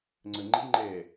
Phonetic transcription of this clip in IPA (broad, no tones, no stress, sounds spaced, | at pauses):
ŋ͡ǀ ə ŋ͡ǃ i ŋ͡ǃ ɛ